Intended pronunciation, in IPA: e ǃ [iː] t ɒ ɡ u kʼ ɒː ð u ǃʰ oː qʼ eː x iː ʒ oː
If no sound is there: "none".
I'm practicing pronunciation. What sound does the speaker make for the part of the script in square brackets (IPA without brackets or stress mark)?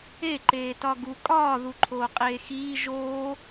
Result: eː